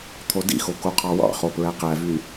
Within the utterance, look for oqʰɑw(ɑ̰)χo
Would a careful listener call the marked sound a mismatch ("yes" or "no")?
no